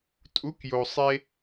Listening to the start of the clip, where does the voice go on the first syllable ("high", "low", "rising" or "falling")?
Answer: rising